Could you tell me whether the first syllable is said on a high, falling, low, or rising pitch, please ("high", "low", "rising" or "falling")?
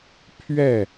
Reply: falling